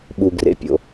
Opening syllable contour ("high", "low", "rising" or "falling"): low